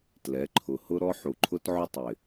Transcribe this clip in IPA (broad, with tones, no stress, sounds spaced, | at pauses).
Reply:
t l ɛ˨˦ ǃʰ ʊ˨ h ʊ˦ ɾ ɔ˦ ħ u˨ ǃʰ ʊ˦ t ʕ ʊ˦ tˤ ɪ˨